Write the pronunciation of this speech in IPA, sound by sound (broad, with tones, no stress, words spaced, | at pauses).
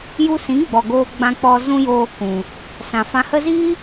ju˧sĩ˨˦ɡ͡bɔ˨ ɡoː˦ɡ͡bã˦k͡pɔ˦ zũ˦joː˧kũ˨ | sã˨fã˧ hə˧ziː˦